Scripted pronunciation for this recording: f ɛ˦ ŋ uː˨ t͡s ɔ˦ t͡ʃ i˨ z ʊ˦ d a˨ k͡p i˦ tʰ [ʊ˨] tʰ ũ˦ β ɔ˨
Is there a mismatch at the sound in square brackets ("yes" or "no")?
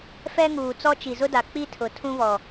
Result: no